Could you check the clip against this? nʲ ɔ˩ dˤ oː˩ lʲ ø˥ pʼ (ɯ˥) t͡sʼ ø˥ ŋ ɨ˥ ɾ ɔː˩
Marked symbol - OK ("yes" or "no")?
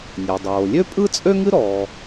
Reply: yes